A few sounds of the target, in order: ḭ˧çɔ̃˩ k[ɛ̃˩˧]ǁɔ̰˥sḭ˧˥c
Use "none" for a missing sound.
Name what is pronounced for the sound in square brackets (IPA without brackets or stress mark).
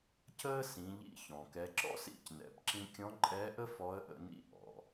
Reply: ɛ˩˧